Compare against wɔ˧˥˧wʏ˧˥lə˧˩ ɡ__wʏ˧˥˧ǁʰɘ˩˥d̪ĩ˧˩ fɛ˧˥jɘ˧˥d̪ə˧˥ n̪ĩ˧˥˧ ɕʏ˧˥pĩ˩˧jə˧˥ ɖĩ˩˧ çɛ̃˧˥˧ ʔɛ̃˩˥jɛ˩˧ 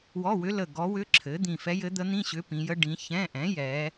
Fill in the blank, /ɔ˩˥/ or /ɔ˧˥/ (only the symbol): ɔ˧˥